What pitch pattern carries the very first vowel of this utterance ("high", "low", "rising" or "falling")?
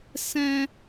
high